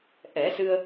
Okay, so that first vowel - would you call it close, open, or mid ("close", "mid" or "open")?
mid